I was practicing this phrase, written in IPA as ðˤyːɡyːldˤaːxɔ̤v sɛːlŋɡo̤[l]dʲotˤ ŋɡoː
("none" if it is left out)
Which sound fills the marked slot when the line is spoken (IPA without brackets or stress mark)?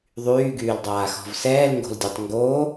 l